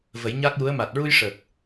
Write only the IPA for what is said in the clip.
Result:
və˨˩˦jɲa˦˥k̚ju˧˥ə̯ ma˨˩t̚ɹu˧j ʂə˨˩k̚

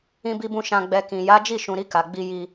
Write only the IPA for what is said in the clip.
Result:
ĩ˧bi˧bũ˧ ʃã˧ɡ͡bɛ˧kĩ˨ ja˨˦d͡ʒi˦˨ʃũ˨ɾi˧ ka˨ɡ͡bi˧ji˧

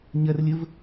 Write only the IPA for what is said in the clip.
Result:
ɲɐrlʲəv

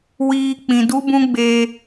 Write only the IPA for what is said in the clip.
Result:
wiː˧k͡pĩ˨ du˦bũ˦ɡ͡beː˧

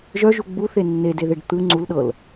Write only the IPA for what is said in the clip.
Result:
ʒœʒu ɡ͡buθe nːedeðeɖ t̪ɯ ŋ͡ǀulɗɤl

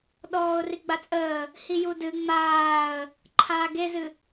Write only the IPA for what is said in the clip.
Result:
ɗɔːʊ̯riɡ͡bat͡sʼəː | hijudɨ ŋ͡maːə̯ | ǃʰaːɡezɨ

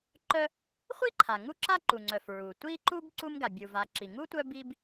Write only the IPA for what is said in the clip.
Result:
ǃœ˦ | χʷi˥ǃʰa˩ ŋu˦ǁa˦ǃu˩ŋ͡ǀœ˩f ɹu˩ tʷi˦ǃu˦b ǀu˦mɡa˩bʲu˩va˨ ǁi˩ŋu˥tʷœ˦bi˦b

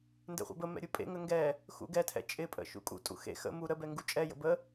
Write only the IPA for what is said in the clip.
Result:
ndɛ̰χʷɛ̰bəmɛ̰ ɾʲupʼḛŋə ŋɡɛ | xṵɡɛtʰɛ̰ t͡ʃʼɪpʼə̰ ʃṵkʼṵtʼṵ xḛ xə̰ mu ɾəbɛ ŋɡut͡ʃʼɛjə̰ bə

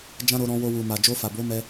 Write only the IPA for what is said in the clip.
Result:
d͡ʒã˦ɾo˧ɾɔ̃˧wo˧ wu˨ma˨ d͡ʒo˧fa˨bo˨˦ mɛ˧

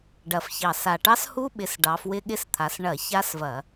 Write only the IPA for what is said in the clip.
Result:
ɖɐ˨˩fçɑ˨˩sa˨˩ ʈɑ˦˥shu˦˥ɓɪ˨˦s ɖɑ˨˦fwɪ˦˥ɠɪ˦˥st̪ʰa˨˦s ɳɐ˧˩˧ ça˦˥svɐ˧˩˧

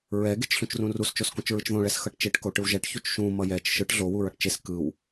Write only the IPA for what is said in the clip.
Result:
ɹɛ ɡet͡ʃɬũt͡ʃrũrus t͡ʃoskũt͡ʃɹɯt͡ʃðõ ɭɛsxʌʈt͡ʃeʈ koʈɯwʒɛʈ çut͡ʃʃũ mʌjɛt͡ʃ ʃɯʈ ɮo wuɹʌʈt͡ʃes kɯw

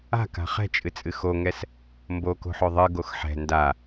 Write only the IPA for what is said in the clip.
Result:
a̤ka̤ χɛ̤t͡ʃʼɨt͡sʼɨ xoŋɛs | mboko̤ħo ðˤɨɡox ħɛ̤ nda

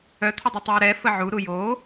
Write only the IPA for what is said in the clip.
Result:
œt̪ʰədˤy tˤuːɾɛ fəʕuɾu joː

